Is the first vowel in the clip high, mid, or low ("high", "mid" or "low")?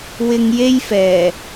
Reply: high